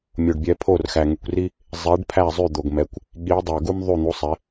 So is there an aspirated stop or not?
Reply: yes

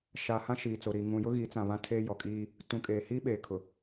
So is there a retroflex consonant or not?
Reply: no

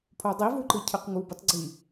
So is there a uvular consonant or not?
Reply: yes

